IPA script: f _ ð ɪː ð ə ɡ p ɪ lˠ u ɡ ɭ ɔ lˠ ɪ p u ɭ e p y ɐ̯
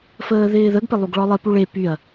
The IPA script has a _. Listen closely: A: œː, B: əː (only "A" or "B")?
B